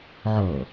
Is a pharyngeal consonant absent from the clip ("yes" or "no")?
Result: no